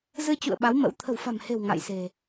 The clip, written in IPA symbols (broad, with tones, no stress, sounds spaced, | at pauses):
z ɨ˧ t͡ɕ ṵ˧˨ ə̯ ɓ a˨˦ w m ə̰˧˥ w t̪ʰ ə̤˨˩ w f a̤˨˩ m h e̤˨˩ w ŋ a̰˧˨ j s e̤˨˩